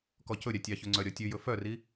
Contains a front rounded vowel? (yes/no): yes